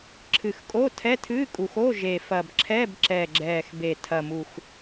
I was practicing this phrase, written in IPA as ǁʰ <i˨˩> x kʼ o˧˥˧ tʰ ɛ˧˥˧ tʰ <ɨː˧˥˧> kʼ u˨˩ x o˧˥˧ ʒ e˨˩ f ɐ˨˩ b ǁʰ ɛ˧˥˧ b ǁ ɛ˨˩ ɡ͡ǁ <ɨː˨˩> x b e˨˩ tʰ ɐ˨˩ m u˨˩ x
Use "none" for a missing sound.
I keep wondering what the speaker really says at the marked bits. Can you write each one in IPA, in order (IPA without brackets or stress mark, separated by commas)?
ɨ˨˩, ɨː˧˥˧, ɛː˨˩